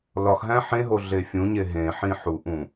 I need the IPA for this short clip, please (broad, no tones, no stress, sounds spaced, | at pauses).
l ɒ x ɦ æ̃ ħ ẽ ɦ o ɮ e fʲ ũ ɲ e ɦ ẽ ħ ĩ ħ u ʔ ũ